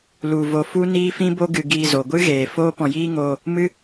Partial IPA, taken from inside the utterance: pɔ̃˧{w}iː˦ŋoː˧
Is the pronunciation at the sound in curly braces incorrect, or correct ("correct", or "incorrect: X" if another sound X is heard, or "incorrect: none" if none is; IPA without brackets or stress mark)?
incorrect: j